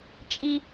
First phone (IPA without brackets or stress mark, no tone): t͡ʃʼ